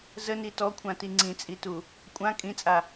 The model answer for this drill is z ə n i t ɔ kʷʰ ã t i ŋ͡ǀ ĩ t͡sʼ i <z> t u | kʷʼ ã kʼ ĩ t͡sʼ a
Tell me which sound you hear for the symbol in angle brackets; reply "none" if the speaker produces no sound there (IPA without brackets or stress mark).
none